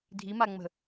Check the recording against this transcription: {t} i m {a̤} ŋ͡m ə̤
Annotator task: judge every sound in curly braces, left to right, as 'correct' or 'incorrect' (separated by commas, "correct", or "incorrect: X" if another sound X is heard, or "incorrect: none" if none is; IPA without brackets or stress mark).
incorrect: dʱ, incorrect: a